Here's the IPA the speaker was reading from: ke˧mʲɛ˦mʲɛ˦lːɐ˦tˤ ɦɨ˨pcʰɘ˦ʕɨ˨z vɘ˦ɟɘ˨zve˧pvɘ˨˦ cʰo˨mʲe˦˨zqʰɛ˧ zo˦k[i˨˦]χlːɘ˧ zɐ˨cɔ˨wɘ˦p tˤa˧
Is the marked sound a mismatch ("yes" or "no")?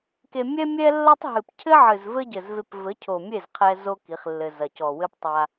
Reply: no